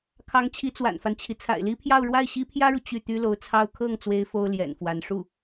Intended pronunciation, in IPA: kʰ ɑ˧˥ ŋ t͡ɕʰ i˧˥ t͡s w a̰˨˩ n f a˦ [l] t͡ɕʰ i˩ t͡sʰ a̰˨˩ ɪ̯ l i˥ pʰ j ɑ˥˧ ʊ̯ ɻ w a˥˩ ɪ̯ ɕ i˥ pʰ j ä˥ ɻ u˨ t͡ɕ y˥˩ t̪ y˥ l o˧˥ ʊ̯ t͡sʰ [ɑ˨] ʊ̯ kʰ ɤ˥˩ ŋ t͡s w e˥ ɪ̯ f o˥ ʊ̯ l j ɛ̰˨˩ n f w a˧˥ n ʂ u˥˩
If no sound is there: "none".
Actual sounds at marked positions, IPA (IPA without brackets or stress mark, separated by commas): n, ɑ˥